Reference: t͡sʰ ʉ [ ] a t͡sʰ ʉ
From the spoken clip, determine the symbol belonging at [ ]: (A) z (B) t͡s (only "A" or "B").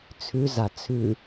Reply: A